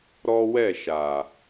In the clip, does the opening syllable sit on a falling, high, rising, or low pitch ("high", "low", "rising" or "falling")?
high